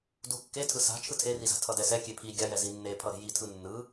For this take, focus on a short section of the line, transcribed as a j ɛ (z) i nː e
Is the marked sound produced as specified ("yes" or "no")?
yes